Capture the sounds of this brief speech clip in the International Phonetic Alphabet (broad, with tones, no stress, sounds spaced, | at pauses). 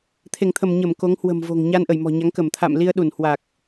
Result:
t̪ʰ e˧˩ ŋ t̪ʰ ə˧˩ m ɲ ə˧˩ m k o˨˦ ŋ h w ə̤˨˩ m v o̤˨˩ ŋ ɲ a˧ n ʔ ə˧˩ j m ɔ̤˨˩ ɲ a˨˦ ŋ k ə˧˩ m t̪ʰ a̰˧˨ m l i˧ ə̯ ɗ u˧˩ n h w a˨˩ k̚